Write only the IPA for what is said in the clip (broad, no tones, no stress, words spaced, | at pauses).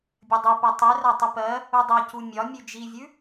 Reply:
bʲɜdˤʉpa tˤʉra tˤupɜ | udˤɜcu mʲɒmʲʉ d͡ʒivʲʉ